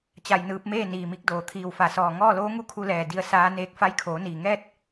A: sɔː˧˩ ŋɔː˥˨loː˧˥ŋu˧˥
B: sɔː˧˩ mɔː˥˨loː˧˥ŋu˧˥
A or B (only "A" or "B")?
A